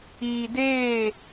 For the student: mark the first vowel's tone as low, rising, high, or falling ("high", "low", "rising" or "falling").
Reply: low